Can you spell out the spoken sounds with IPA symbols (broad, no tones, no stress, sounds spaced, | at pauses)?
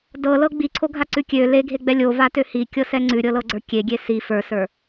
d ɤ l ɤ ɡ͡b i ǀʰ o ɡʱ a ǀ ʉ kʲ ø l e ɡʱ e ɡ͡b ɛ lʲ o v a t ø h i kʲ ɤ s ɛ ŋ͡ǀ ʉ ɾʲ ɤ l ɤ ɡ͡ǀ ə˞ kʲ e ɡʲ e s i f ə˞ s ə˞